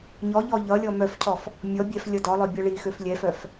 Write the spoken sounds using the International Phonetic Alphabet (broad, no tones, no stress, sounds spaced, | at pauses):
ɲ ɔ ʎ ɔ ʎ ʌ lʲ ɔ m œ f cʰ ɔ f | mʲ ɔ bʲ ɛ f lʲ ʌ d ɔ lˠ œ bʲ ʌ ɭ i x ø f lʲ ɛ f œ f